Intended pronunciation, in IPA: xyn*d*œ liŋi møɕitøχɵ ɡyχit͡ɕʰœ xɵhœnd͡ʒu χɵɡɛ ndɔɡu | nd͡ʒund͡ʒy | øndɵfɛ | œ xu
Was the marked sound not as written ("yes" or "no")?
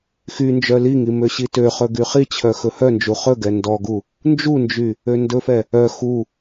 yes